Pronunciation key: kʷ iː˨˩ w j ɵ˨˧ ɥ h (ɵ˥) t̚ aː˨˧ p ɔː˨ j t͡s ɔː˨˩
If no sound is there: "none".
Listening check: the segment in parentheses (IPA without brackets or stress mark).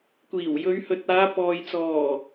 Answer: ɵ˨˥